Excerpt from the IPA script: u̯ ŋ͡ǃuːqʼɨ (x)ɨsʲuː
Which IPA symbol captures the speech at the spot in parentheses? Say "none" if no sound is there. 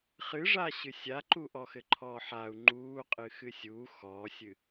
x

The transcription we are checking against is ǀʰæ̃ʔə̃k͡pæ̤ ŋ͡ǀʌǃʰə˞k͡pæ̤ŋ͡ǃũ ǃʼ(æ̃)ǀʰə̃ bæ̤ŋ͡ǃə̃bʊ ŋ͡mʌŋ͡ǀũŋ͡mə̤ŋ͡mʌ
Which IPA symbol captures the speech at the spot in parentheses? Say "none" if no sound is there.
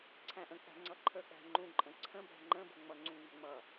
ə̃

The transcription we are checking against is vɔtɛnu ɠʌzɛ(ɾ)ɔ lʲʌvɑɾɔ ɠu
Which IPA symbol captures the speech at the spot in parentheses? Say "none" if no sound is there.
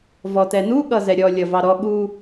ɾʲ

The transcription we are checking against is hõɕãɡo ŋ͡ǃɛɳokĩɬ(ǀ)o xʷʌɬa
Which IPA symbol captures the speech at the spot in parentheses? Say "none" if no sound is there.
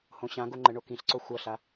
ǀ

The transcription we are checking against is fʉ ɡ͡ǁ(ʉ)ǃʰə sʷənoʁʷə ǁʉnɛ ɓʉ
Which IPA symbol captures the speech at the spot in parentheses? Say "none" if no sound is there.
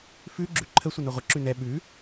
ʉ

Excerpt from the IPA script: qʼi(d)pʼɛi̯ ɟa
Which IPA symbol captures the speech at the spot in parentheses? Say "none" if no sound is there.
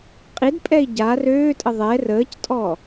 d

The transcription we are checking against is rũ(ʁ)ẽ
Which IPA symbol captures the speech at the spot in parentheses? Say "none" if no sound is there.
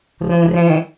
r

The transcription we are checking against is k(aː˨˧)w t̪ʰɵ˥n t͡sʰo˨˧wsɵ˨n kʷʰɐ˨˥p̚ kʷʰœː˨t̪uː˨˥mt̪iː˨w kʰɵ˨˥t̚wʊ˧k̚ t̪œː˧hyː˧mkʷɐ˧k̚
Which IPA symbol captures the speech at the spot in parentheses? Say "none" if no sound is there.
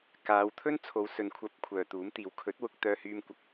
aː˨˧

